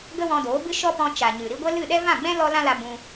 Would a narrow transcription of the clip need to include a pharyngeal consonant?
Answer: no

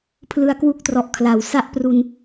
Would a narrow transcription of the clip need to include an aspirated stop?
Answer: yes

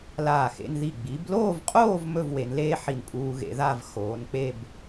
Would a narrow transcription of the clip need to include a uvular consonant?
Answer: yes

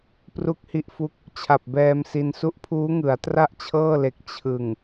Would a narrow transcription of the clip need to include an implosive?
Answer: no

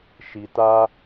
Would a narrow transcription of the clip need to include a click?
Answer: no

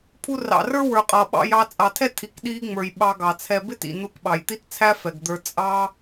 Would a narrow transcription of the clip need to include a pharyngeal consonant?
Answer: no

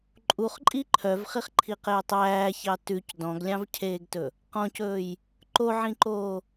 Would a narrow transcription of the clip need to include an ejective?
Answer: yes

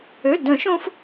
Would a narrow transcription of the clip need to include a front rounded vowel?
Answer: yes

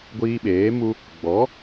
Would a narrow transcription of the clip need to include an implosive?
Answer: yes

